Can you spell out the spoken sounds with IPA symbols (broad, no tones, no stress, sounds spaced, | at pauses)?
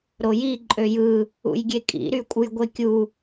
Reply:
ɾ o j i ǃʼ ø j ɯ | ṵ j ɡʲ e kʼ ḭ ɾ y kʷʼ ɯ j ɡʷ e kʲ u